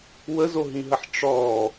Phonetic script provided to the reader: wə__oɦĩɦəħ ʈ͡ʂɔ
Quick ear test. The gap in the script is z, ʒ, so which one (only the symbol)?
z